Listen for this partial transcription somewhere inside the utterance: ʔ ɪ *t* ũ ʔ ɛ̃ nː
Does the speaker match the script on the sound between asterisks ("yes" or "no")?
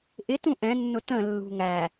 yes